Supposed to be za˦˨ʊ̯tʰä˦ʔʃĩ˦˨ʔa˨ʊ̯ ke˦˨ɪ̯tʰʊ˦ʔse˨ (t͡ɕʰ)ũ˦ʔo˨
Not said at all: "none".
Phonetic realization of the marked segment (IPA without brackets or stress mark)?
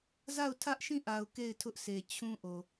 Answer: t͡ɕʰ